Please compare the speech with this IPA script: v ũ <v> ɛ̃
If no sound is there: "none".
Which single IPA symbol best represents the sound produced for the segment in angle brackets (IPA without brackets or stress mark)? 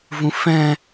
f